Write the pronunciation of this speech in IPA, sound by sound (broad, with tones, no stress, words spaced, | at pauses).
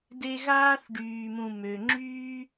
de˦ɣaː˥θɖyː˨mũ˨ mø˩ ŋ͡ǁyː˦